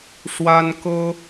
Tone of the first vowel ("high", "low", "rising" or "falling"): high